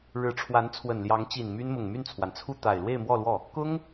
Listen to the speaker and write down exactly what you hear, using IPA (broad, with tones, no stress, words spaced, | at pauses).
ɻɻ̩˧˥ʈ͡ʂʰwa˧˥n t͡sʰwə˨˩nljɑ˧˥ŋt͡ɕi˨˩n my˥nmʊ˨˩ŋ my˥˩nt͡sʰwa˩nt͡sʰu˥˩ t̪a˨˩ɪ̯ lwe˥˧ɪ̯mwɔ˥˧lwɔ˥˩ | kʊ˥ŋ